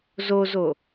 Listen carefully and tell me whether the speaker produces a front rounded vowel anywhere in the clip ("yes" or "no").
no